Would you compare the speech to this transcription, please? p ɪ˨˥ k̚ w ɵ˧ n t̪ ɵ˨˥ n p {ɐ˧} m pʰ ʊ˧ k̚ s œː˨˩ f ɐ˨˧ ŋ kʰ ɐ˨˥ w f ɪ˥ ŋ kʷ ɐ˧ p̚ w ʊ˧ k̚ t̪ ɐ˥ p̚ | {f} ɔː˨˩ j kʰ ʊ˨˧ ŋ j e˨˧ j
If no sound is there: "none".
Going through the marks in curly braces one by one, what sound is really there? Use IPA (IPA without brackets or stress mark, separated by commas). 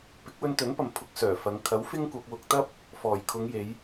ɐ˨, f